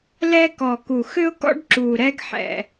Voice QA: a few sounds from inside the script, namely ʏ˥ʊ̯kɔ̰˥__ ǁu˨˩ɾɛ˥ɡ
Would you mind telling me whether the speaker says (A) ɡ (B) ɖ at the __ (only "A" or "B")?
B